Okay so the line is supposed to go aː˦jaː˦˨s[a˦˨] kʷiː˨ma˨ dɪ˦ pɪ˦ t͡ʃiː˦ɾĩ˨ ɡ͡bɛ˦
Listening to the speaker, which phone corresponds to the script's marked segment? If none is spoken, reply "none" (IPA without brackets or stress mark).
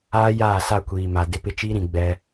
a˦˨